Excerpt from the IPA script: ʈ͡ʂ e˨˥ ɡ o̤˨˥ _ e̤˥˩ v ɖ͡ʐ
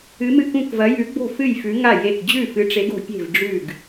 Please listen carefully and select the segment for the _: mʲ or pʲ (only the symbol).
pʲ